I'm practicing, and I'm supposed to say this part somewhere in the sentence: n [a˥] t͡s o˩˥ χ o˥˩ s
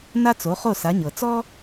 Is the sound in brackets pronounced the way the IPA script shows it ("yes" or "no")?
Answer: yes